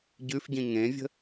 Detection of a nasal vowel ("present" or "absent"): present